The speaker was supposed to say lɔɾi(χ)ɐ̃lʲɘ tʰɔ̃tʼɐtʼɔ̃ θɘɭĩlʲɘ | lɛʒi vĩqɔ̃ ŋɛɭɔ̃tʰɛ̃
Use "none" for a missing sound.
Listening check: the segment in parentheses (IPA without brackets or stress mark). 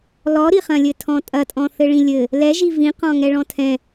χ